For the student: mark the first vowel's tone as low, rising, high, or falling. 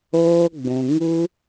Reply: high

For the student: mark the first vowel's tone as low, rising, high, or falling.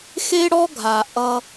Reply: high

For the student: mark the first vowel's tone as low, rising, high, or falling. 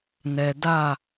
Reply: low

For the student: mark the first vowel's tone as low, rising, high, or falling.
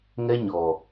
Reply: high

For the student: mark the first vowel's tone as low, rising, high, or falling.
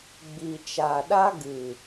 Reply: low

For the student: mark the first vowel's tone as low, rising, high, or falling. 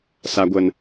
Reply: low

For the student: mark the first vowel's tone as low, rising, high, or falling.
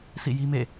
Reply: falling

